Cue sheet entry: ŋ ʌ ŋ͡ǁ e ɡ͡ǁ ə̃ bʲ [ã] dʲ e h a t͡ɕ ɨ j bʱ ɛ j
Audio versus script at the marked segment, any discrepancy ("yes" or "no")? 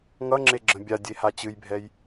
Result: yes